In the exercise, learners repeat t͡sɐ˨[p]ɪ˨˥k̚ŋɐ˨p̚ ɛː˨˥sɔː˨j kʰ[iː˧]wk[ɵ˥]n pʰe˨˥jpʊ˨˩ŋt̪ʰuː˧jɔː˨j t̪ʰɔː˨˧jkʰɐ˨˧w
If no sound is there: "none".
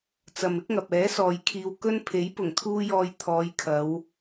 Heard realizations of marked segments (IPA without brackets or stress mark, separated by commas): m, iː˧, ɵ˥